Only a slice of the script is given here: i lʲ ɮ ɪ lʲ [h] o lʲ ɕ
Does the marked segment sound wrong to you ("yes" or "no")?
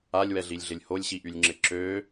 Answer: no